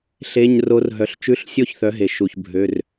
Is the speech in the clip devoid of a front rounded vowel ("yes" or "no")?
no